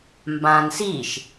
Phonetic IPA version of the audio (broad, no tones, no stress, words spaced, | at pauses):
mbãn siʃ